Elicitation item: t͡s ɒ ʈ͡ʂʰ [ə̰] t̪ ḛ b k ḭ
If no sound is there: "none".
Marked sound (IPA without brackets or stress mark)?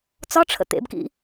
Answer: ə̰